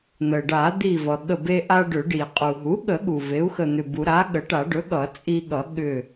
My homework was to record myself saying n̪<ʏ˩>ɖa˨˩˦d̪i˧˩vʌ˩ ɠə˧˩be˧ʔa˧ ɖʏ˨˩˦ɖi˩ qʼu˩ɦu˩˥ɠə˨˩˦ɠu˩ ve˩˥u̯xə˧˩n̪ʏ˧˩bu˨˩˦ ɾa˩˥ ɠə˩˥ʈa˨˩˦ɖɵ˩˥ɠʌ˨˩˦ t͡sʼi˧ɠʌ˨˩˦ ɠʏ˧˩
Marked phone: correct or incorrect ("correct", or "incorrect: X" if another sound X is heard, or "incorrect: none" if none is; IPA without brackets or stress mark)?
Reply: incorrect: ə˩